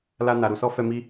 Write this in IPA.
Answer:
l a˧ n a˨ ɾ u˨ s ɔ˧ f ɛ˧ m i˦

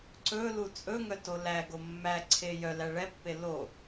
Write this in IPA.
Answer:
ǀ ɵ l u t͡sʼ ɵ ŋ œ t o l æ ɡ o mː æ ǀʰ e j œ l æ ɭ ɛ pː e l o

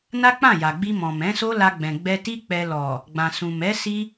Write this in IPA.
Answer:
n a˦ k͡p ã˦˨ j a˨ ɡ͡b i˧ m ɔ̃˨ m ɛ̃˨˦ s o˦ l a˧ ɡ͡b ɛ̃˨ ɡ͡b ɛ˧ t i˦ k͡p ɛ˧ l ɔ˨ | ɡ͡b ã˨ s ũ˨ m ɛ˨˦ s i˦

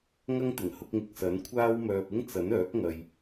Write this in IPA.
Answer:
ŋ ɐ˥ ŋ t̪ ɪ˨˩ ŋ h ʊ˧ k̚ ŋ ɪ˨ k̚ s ɐ˨˥ n kʷʰ aː˥ w m œː˧ p̚ ɪ˥ ŋ t͡s ɐ˨˥ n œː˨˥ k̚ ŋ ɐ˨ j

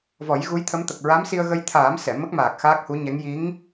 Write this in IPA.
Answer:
v ɔ˨˩˦ j ɣ u˧˥ j t̪ʰ ə˧˥ m t̪ ə˨˩ k̚ ɹ a˧˥ m s i˧ ə̯ ɣ ə˧ j t̪ʰ aː˨˩˦ m s ɛ˨˩˨ m ə˦˥ k̚ m aː˨˩ k̚ x aː˦˥ k̚ h u˧˥ ɲ ɛ˧˥ ŋ j i˧˥ ŋ

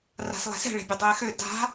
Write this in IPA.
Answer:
r a̤ s lˠ ɛ̤ s ɛ̤ ɭ e̤ bʲ e dˤ ɘː x ø d a̤

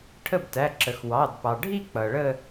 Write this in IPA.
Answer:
ʈʰ ə˥˩ b t æ˩˧˩ ǁ ə˩ x w ɑ˩˧˩ d p ɑ˩ ɖʱ i˥˧ k͡p ʌ˩ ɭ ə˥˧

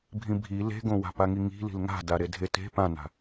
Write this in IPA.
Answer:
bʱ ĩ bʱ i l e̤ ɡ õ w a̤ p a ŋ i ŋ i̤ l i̤ l ŋ a̤ d a ɾ e dʱ e t e̤ p ã n a̤

